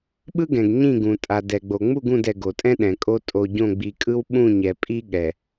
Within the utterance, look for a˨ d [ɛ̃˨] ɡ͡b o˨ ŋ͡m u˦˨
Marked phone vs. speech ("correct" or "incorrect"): incorrect